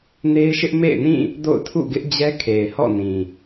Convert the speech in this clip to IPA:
n e˦ ɪ̯ ʃ ɪ˦ ʔ m ḛ˦˨ ɪ̯ n ĩ˦˨ | d o̰˦˨ ʊ̯ tʰ ṵ˦˨ ɡ ɪ˦ ʔ d͡ʑ ɛ˦ kʰ e˨ ɪ̯ h ɔ̰˦˨ n ĩ˨

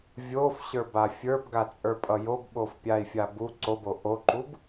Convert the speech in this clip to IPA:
vʲ o f ɕ ə˞ b a fʲ ə˞ b ɡ a t͡sʼ ə˞ pʼ ʌ j o b ɓ o f pʲ a i̯ fʲ a b u ǀ o b o ʔ o ǃ u b

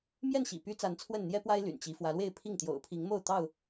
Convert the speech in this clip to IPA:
m j ɛ˥˨ n ɕ ḭ˨˩ p y˦ t͡s a˨˦ n t͡sʰ w ə˥˨ n n̪ j ɛ˦ p w a˦ ɪ̯ l y̰˨˩ n t͡ɕ i˨˦ f w ä˨˦ l w e˥˨ ɪ̯ pʰ i˥˨ ŋ t̪ j o̰˨˩ ʊ̯ pʰ i˨˦ ŋ m o˥˨ ʊ̯ t̪ ɑ˥˨ ʊ̯

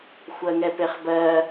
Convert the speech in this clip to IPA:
xʷ ɜ ŋ ɛ p e χ b ɜ

